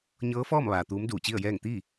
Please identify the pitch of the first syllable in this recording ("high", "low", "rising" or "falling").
rising